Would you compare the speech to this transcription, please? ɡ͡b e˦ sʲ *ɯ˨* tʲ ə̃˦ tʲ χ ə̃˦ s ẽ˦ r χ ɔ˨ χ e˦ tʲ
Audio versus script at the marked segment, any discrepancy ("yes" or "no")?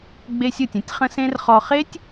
no